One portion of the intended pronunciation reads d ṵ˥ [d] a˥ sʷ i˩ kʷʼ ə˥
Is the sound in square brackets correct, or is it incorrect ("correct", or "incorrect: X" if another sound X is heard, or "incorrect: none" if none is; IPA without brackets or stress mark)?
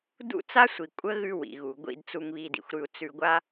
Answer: incorrect: t͡s